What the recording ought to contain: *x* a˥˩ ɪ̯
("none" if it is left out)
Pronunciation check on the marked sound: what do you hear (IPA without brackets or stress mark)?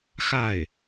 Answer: x